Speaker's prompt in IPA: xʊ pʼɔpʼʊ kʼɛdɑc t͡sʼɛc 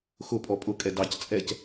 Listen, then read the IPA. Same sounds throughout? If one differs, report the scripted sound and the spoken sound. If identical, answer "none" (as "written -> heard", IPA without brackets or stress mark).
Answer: none